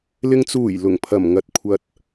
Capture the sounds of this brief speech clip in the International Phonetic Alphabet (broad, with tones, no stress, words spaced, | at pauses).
lɪ˨ŋt͡suː˨˩j lʊ˨˩ŋpʰɐ˨˩m ŋɐ˧t̚kʷʰɐ˧t̚